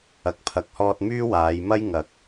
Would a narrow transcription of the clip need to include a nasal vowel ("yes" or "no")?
no